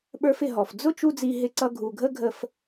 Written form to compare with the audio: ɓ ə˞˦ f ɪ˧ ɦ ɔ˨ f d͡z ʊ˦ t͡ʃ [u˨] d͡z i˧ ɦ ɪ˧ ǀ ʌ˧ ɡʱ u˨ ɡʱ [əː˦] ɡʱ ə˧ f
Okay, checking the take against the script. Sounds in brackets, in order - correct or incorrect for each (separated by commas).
incorrect, incorrect